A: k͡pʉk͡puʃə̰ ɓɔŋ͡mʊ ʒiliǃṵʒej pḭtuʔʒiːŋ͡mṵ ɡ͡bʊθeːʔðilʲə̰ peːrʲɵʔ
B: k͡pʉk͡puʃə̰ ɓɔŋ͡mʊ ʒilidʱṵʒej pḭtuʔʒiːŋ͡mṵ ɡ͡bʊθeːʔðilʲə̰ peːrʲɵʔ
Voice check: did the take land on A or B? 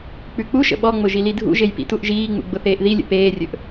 B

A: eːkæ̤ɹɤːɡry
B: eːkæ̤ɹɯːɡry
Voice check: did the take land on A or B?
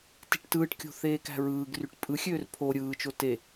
B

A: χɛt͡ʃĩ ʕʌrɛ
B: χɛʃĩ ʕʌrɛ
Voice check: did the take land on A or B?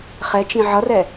A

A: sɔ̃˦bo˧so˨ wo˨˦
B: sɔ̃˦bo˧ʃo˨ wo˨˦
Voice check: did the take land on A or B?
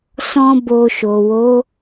B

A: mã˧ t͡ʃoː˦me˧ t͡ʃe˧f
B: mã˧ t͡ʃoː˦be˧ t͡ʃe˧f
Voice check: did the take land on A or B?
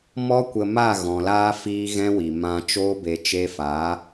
B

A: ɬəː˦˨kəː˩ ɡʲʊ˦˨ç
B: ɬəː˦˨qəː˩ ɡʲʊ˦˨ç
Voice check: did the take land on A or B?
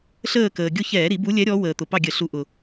A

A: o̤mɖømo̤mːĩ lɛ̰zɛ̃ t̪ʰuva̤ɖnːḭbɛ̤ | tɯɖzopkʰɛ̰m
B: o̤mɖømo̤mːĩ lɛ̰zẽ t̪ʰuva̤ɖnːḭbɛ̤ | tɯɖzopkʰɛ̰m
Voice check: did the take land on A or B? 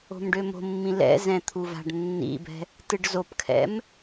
A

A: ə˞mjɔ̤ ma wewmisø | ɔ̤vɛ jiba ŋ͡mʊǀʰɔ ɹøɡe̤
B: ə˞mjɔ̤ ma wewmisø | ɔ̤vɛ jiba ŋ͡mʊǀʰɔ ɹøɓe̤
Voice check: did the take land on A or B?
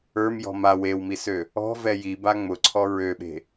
B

